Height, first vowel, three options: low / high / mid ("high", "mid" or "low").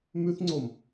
high